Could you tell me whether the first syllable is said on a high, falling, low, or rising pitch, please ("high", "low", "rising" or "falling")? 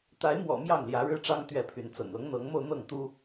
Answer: rising